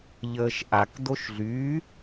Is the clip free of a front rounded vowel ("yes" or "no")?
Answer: no